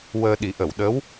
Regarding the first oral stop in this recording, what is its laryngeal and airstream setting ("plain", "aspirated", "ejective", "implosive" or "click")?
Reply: implosive